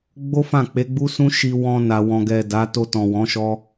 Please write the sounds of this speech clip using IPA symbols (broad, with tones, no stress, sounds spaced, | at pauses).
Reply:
ɡ͡b o˦ f ã˦˨ k͡p e˨˦ ɡ͡b u˦ s ũ˦ ʃ i˧ w ɔ̃˧ n a˨ w ɔ̃˨ ɡ ɛ˨ d a˨˦ t o˧ t ɔ̃˨ w ɔ̃˨˦ ʃ ɔ˦